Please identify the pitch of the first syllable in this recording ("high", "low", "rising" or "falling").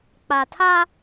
low